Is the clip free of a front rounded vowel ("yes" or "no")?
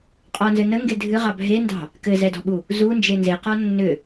no